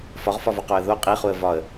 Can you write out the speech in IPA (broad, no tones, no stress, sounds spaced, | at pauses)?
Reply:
f ɒ ʁ f ɒ v o q o ə̯ ð o qʼ i χ u ə̯ v ɒ ə̯